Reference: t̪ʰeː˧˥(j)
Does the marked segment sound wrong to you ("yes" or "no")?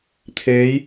no